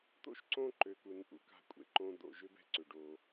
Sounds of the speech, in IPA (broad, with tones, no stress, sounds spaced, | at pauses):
t̪ o̰˦ ʃ ǀ õ˦ ǃ ø˨ k u˨ n ʔ ṵ˨ k a̤˦˨ kʷʼ ḛ˨ ǃ õ˦ d̪ o̰˨ ʒ ʏ˦ b ɛ̤˦ ǀ ʏ˨ ɖ o˦